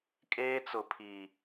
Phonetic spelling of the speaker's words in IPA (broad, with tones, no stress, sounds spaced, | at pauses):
kʼ eː˦ t͡s ʊ˨ pʰ iː˨